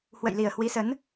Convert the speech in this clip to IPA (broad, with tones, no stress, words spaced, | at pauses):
hwə̰˧˨jli˨˩ə̯ hwi˨˦sə˨˦n